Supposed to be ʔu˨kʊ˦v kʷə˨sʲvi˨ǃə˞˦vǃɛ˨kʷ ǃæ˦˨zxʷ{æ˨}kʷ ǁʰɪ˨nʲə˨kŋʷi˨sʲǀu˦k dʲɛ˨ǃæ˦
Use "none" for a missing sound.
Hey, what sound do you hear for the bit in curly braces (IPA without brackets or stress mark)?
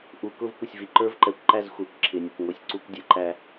æ˨